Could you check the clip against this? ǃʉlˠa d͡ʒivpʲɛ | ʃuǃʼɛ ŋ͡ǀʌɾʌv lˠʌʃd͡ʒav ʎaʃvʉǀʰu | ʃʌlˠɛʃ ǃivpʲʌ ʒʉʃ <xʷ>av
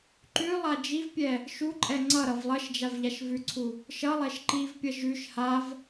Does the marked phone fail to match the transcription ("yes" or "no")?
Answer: yes